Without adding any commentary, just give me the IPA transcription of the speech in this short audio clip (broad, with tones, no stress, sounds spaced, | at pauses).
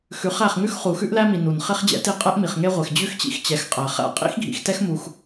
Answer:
x ʉ˨˦ χ æ˦˨ χ ŋ ʉ˦ x χ u˨ x ʉ˦ ʔ l æ˦ m i˨ n u˨ n χ e˦ χ d͡ʑ ɛ̰˦ t i˦˨ qʼ ɛ˦ ʔ m i˨ χ ŋ e˦ ʁʷ e˨ x d͡ʑ ʉ˦ x t͡ɕ ḭ˦ x t͡ɕ ɛ˨˦ x qʼ æ˨ χ æ̰˦ qʼ ḭ˦ x ɡʱ ḭ˨ x t ɛ˦ x m u˦ x